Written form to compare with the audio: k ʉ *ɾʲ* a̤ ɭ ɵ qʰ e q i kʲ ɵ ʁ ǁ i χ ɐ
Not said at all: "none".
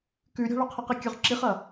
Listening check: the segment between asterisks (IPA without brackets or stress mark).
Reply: ɾʲ